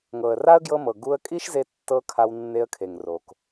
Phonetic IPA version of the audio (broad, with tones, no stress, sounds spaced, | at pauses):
ŋ ɤ˨ ə̯ r a˦ ə̯ ɡ j ɤ˧ m ɤ˨ ɡ u˧ ə̯ kʼ i˦ ʃ z e˧ tː ɤ˧ kʰ a˧ w nː e˧ ə̯ kʰ e˨ ŋ r o˨ k